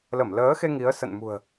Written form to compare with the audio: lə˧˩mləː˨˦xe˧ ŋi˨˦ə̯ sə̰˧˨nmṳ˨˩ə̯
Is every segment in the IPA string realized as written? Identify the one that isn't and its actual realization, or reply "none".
none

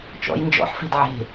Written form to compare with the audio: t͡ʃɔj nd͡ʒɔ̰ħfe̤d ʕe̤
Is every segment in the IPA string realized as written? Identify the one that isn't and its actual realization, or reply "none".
ɔ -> ɔ̰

